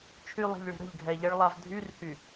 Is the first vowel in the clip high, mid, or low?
high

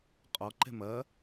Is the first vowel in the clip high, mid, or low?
mid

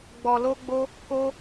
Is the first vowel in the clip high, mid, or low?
mid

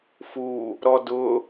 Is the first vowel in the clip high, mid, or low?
high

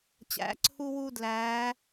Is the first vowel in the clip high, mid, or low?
low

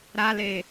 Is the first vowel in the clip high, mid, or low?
low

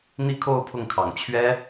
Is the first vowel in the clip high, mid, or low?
high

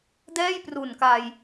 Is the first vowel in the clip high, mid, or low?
mid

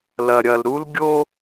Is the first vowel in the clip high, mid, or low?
low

